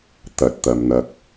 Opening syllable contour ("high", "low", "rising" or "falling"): low